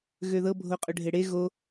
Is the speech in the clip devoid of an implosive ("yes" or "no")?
yes